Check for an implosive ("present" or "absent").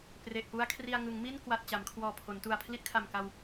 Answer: absent